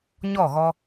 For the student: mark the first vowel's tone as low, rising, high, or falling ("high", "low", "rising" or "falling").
falling